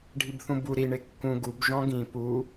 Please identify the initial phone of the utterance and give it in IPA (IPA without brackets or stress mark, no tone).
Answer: ɖʱ